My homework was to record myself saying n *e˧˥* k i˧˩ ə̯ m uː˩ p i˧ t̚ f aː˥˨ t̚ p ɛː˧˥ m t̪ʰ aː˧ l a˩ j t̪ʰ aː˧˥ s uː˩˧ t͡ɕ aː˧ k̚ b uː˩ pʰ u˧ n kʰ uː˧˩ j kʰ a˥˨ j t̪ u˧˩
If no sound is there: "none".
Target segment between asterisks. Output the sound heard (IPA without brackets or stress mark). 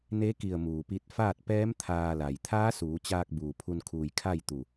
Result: e˧˥